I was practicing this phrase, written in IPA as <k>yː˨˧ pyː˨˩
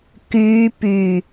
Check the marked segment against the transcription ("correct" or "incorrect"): correct